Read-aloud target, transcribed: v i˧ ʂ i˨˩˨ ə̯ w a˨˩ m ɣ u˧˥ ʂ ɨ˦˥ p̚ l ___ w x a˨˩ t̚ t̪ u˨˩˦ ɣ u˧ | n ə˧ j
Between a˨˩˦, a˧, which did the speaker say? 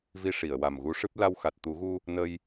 a˧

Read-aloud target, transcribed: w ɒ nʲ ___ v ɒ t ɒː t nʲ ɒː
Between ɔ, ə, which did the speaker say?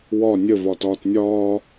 ə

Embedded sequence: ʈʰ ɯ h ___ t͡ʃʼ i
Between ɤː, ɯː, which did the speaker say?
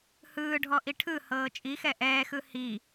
ɤː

